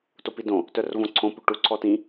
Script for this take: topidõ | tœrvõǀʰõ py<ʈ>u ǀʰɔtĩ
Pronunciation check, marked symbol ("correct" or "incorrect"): correct